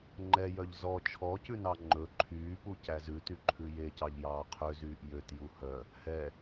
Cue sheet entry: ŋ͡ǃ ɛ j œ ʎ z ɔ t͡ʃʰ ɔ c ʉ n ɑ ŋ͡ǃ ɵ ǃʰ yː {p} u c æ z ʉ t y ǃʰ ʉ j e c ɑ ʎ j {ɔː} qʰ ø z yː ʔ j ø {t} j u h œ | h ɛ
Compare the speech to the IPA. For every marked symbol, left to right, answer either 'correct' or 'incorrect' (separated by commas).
correct, incorrect, correct